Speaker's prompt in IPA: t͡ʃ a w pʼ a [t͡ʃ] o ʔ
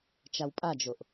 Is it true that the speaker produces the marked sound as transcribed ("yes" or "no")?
no